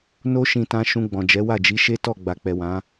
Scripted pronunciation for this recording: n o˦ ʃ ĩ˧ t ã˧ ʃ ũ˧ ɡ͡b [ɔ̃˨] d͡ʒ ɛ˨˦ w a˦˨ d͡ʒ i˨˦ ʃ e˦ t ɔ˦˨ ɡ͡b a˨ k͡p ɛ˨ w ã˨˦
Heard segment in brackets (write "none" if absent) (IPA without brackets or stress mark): ɔ̃˨